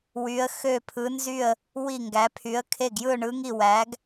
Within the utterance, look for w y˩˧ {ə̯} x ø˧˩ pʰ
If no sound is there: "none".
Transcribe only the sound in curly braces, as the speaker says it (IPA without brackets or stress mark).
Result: ə̯